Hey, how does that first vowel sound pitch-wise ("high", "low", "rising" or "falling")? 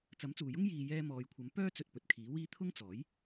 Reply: rising